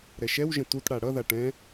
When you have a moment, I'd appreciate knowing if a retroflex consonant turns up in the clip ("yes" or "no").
yes